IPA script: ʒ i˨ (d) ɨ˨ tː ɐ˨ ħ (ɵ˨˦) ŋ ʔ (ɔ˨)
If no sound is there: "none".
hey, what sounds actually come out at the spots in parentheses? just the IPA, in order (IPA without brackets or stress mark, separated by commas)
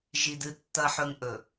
d, ɵ˨, ɵ˨